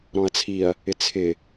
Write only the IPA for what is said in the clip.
ɾ ɔ̃ ɐ̯ t͡sʰ i ɐ̯ | ɪ t͡sʰ ɪ

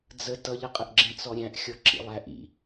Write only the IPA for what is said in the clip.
d͡z ə t ʌ ʎ ʌ qʼ ə ʔ ɡ͡ǁ ĩ t͡s ɔ ɾʲ æ̃ ʔ xʲ ɔ ǁ ḭ lˠ æ ʔ ḭ

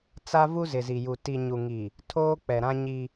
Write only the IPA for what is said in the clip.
t͡s a˦ v u˦ z ɪ˨ z i˨ j u˨ t i˨ ɲ u˨ ŋ i˨ | tʰ oː˦ k͡p ɛ˨ ɾ ã˦ ɲ i˦

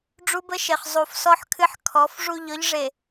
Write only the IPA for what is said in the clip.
ɖ͡ʐ u˦ b ə˦ ʃ e˨ χ zˤ u˨ f s ɔ˦ ħ kʰ ɨ˦ ħ kʰ ɔ˨˦ f ʐ u˦˨ ʎ ɔ˦ ʎ ʐ e˨

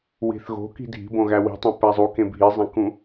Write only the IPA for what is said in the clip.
w i̤ θ ɣ o̤ k i̤ dʱ i̤ b õ ɣ æ w i̤ tˤ õ p æ zˤ u k ẽ bʱ i zˤ æ̃ k ũ

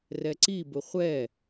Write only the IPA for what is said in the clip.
r ɛ ǀ i b ʊ χʷ ɛ

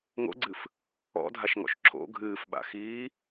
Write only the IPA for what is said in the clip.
ŋ o̰ ɡ͡ǀ ɨ f | ɔ̰ dʱ a ʃ ŋ ɔ̰ ʃ ǁ o̰ ɡʱ ɨː f ɓ a̰ x iː

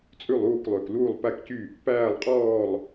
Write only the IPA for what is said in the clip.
t͡sʼ ʉ˥˨ lˠ uː˥˨ k lˠ ø˨˩ k l uː˥˨ lˠ p æ˥˨ k c y˥˨ | p æː˥˨ lˠ qʼ ɔː˥˨ lˠ

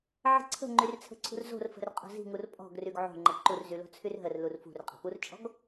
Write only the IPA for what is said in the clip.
ʕ ə̤ ǀʰ ə̤ ŋ͡ǃ y r t͡sʰ ə̤ ǀʰ ṳ r z o̤ r f ə̤ r qʼ o̤ z i̤ ŋ u r pʼ ɔ̤ ɡ r y ɡ ʕ o̤ ŋ͡ǃ ə ǃ u r z y l o̤ t͡sʰ y r ɦ ə r l u r f ṳ r qʼ ə̤ p u r t͡ʃʼ ɔ̤ ɡ

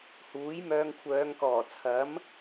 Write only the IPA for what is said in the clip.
h uː˨˥ j m œː˧ ŋ kʷʰ œː˨˧ ŋ k ɔː˨˩ t͡sʰ ɐ˨˥ m

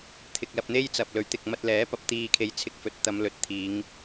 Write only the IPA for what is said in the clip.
t̪ʰ ɪ˨ k̚ l ɐ˧ p̚ n̪ e˥ j t͡s ɐ˨ p̚ l ɵ˨˥ ɥ t̪ ɪ˨ k̚ m ɐ˧ t̚ l ɛː˨˥ p ɐ˨˥ p̚ t̪ iː˨ kʰ e˨ j t͡sʰ ɪ˧ k̚ f ɵ˨ t̚ t̪ ɐ˨˧ m l ɵ˨ t̚ t̪ʰ iː˨˧ ŋ

